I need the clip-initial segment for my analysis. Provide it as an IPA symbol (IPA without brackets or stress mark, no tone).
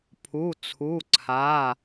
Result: pʰ